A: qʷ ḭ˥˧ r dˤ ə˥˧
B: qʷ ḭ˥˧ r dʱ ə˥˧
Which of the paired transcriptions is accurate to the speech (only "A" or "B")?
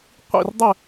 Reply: A